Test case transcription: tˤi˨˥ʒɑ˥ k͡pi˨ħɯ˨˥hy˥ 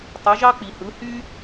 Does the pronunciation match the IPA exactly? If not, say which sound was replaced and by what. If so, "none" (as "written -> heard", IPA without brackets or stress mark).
ħ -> h